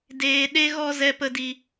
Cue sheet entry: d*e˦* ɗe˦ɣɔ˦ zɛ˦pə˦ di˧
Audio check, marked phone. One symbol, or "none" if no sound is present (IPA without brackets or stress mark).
eː˦